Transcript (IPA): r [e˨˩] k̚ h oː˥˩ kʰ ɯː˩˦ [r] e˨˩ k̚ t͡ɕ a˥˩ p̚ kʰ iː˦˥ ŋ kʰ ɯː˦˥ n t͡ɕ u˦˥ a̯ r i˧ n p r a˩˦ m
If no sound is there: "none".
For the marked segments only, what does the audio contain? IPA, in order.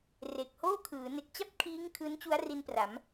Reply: e˨˩, n

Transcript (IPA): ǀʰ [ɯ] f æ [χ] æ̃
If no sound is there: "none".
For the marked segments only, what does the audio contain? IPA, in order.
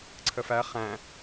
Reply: ə, χ

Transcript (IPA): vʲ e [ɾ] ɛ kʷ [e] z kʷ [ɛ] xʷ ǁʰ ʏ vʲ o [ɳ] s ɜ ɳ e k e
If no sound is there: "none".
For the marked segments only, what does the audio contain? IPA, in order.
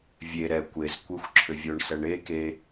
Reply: ɾ, e, e, ɳ

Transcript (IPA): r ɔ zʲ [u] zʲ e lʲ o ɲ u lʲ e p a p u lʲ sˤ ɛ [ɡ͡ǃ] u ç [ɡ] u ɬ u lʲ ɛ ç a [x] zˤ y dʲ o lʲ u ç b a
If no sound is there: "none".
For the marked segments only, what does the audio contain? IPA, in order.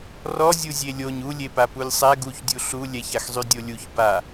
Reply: u, ɡ, dʲ, x

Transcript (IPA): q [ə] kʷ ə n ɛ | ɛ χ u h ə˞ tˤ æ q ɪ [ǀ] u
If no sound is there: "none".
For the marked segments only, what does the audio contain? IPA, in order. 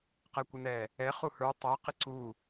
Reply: ɛ, ǀ

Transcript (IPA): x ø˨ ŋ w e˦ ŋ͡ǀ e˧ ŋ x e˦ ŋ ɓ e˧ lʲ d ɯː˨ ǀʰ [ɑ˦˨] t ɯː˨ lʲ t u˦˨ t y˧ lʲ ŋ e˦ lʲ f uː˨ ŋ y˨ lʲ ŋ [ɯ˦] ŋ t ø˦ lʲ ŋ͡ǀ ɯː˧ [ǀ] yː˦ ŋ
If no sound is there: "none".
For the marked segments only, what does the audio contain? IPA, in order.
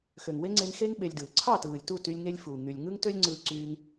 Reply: ɑ˦˨, ɯ˦, ǀ

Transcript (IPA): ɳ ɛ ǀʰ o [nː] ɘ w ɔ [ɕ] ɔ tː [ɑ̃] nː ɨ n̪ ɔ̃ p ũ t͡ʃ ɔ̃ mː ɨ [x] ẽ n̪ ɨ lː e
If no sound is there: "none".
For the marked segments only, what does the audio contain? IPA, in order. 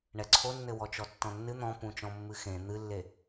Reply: nː, t͡ʃ, ɔ̃, x

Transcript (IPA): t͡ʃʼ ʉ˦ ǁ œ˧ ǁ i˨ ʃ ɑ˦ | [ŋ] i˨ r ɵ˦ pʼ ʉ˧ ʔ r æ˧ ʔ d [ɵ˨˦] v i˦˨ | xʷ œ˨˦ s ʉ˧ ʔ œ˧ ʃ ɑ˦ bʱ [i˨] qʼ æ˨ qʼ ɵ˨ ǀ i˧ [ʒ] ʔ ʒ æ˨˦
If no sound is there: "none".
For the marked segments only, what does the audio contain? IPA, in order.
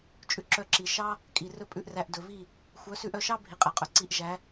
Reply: kʼ, ɵ˨, i˨, none

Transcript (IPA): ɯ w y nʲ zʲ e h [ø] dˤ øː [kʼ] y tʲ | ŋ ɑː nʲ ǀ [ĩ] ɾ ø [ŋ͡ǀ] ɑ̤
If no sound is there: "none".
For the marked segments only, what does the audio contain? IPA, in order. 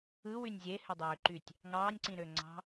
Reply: ø, ǃ, ĩ, ŋ͡ǀ

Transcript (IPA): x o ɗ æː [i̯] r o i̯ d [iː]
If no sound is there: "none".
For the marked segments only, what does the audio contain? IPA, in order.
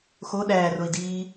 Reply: none, iː

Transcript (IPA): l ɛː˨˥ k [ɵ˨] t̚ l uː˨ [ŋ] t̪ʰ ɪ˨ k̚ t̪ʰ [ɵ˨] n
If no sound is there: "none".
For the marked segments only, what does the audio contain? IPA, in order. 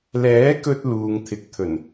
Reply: ɵ˧, ŋ, ɵ˨˩

